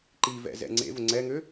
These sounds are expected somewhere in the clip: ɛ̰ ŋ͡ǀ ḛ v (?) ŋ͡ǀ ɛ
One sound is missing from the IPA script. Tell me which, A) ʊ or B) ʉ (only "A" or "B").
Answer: A